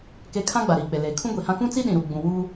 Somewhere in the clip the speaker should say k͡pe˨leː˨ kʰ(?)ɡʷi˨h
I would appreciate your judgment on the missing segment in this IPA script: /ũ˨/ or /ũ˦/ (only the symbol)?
ũ˦